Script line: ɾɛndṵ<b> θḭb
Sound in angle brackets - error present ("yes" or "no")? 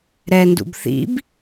no